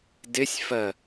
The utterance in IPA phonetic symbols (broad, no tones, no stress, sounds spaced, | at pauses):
d ɪ sʲ f ɜ